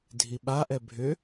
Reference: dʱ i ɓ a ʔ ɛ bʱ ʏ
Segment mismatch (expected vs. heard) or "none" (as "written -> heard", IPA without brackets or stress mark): none